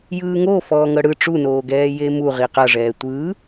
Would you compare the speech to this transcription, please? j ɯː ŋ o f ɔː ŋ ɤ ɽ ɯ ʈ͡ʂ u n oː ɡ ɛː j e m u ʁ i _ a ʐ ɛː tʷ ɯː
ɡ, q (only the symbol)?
q